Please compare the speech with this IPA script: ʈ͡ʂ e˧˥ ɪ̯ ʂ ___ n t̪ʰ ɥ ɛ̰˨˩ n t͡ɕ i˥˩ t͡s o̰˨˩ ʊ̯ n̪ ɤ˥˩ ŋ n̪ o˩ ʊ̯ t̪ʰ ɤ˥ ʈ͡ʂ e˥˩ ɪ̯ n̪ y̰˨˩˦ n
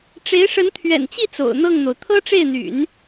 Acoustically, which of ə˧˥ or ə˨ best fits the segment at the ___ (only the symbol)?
ə˧˥